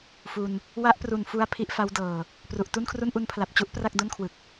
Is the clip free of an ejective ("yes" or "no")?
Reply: yes